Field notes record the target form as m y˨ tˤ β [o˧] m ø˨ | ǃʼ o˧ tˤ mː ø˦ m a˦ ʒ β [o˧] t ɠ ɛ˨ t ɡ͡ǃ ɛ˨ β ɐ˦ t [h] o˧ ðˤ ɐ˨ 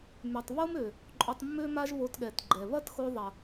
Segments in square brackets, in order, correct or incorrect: incorrect: o˦, correct, incorrect: x

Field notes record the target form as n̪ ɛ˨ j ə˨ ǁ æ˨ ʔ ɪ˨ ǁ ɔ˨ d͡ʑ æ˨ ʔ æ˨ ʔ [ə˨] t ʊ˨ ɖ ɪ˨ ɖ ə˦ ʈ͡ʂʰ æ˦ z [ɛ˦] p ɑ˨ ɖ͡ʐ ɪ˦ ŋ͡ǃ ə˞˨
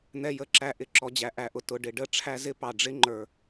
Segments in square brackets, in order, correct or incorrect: incorrect: ʊ˨, incorrect: ɪ˦

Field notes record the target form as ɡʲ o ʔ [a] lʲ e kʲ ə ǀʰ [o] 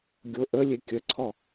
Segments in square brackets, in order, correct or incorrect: incorrect: ə, incorrect: ɔ

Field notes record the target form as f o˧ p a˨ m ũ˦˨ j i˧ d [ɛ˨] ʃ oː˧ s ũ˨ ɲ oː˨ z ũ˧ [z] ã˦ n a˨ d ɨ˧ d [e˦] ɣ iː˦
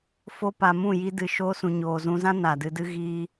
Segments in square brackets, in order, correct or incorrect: incorrect: ɨ˨, correct, incorrect: ɨ˦

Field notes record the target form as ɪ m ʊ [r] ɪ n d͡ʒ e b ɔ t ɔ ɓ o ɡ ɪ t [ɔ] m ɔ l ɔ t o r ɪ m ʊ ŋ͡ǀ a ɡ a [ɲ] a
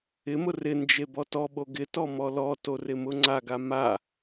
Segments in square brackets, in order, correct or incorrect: correct, correct, incorrect: m

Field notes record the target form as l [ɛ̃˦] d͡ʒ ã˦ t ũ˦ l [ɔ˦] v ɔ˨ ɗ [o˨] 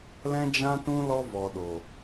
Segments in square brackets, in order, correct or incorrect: correct, correct, correct

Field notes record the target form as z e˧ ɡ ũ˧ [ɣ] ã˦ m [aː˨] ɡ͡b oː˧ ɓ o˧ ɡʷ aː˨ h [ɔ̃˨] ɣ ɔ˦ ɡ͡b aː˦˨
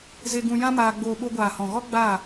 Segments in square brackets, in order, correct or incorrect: incorrect: j, incorrect: aː˧, correct

